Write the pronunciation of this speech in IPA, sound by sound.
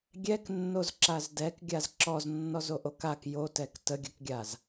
ɡʲ ɛ k nː o z ǁ a z d ɛ k ɡʲ a z ǁ ɔ z nː ɔ z o ʔ o k a k j o t ɛ k t ə ɡʲ ə k ɡʲ a z

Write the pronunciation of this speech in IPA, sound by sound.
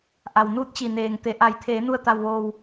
ʔ a˩ w n uː˧ t̚ t͡ɕ i˩ n eː˩ ŋ t̪ e˩˧ ʔ a˩˧ j t̪ʰ eː˩˧ n u˧˩ ə̯ t̪ a˧ w ʋ oː˧ w

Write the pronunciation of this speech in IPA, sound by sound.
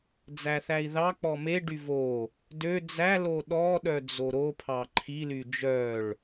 d͡z æ θ æ i̯ ð ɑ k͡p ɔ m e ɖ y v o | d ø d͡z æ l o ɗ ɔ ɗ œ d͡z o ɾ o pʰ ɑ ǃʰ i l y d͡ʒ œ ɭ

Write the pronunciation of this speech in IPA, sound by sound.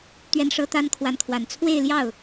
t̪ ɥ ɛ˥ n ʂ ɤ˥ t̪ a˥ n kʰ w a˧˥ n kʰ w a˨˩ n t͡sʰ w e˥˧ ɪ̯ l j ɑ˥˩ ʊ̯

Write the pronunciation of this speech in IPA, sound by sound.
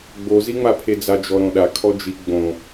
ɡ͡b o z i ŋ͡m a pʰ e d͡z a d͡ʒ ɔ ɾ õ ɗ a kʰ ɔ d͡ʒ i ɡ͡b õ

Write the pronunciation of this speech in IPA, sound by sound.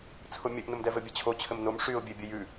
t͡sʰ ʊ mʲ ɘ ʔ n ʊ m d ɛ v ɘ bʲ ɛ t͡ɕʰ o t͡ɕʰ ɘ m n o m ʂ y ʊ̯ bʲ e bʲ ɘ j ʉ

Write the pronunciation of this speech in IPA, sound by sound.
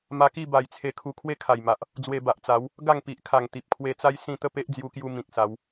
m a˧ k i˥˧ b a˨˩ j t͡sʰ e˧ kʰ u˧ kʰ w e˦ kʰ a˨˩ j m a˨ ʔ | d͡z w e˧ b a˨ ʔ t͡s a˨˦ w | ɡ a˥˧ ŋ p i˨ ʔ kʰ a˨˩ ŋ t̪ i˨ p̚ kʰ w e˧ t͡s a˦ j s ĩ˥˧ t̪ ə˥˧ p e˦ ʔ d͡z j u˧ k j u˧ m ĩ˨ k̚ s a˨˦ w

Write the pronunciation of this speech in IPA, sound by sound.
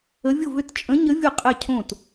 ə˧˥ vʲ ʊ˥˨ v ʏ˥˨ t t͡ʃʼ ə̃˧˥ ɲ ə˧˥ vʲ ʊ˥˨ qʼ ɛ˥˨ cʰ õ˥˨ t

